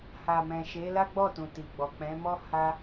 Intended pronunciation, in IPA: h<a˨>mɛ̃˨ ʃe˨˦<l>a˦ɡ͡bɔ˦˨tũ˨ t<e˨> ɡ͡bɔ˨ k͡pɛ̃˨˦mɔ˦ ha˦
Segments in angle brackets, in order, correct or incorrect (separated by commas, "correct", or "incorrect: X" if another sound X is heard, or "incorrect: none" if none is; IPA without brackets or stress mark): correct, correct, incorrect: i˨